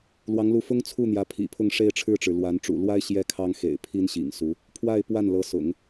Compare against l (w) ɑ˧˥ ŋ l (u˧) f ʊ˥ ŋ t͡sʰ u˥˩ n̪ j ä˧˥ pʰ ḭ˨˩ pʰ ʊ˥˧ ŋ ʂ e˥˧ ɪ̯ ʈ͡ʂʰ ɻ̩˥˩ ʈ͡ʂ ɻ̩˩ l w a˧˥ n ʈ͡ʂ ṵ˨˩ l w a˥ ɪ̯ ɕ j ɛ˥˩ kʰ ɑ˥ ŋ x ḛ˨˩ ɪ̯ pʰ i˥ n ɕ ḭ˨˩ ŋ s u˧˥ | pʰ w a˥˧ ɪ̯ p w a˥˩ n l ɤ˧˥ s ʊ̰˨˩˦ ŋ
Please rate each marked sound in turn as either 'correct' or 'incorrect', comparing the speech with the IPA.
correct, incorrect: u˧˥

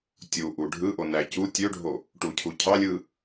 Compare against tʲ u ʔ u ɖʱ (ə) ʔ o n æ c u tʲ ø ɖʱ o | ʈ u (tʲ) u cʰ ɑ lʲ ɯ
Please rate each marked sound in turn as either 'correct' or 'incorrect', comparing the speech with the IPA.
incorrect: ɯ, incorrect: cʰ

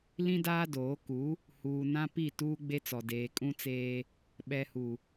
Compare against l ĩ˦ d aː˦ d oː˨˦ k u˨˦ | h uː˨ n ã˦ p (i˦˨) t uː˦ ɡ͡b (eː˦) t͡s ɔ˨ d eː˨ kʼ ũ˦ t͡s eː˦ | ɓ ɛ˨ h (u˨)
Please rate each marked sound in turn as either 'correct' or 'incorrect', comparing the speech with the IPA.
correct, incorrect: e˦, correct

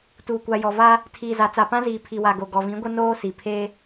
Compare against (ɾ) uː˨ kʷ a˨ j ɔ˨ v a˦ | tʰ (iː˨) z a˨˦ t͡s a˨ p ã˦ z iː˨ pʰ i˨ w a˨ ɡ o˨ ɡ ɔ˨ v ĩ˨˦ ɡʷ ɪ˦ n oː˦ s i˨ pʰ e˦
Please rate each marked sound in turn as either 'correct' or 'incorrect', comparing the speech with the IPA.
incorrect: t, correct

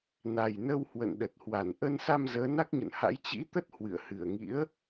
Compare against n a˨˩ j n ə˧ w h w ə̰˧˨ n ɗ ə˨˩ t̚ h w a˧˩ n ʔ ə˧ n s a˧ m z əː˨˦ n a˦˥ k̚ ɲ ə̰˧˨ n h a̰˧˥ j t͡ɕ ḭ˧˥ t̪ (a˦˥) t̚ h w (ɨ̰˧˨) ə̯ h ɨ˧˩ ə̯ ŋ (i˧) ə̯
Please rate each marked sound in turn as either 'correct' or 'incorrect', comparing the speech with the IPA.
incorrect: ə˦˥, correct, incorrect: ḭ˧˥

